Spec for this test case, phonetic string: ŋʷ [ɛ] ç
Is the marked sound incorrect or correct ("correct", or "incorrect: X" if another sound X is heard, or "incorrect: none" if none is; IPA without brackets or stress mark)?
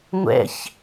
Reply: incorrect: ɛ̰